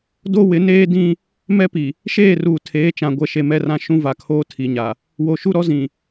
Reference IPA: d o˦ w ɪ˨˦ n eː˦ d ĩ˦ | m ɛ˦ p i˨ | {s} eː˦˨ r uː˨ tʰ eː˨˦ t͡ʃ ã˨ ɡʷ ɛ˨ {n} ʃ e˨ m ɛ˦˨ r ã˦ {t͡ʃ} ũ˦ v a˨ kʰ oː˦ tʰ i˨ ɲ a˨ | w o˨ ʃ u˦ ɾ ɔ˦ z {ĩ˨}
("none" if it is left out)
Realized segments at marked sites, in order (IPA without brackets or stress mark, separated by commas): ʃ, none, ʃ, ĩ˨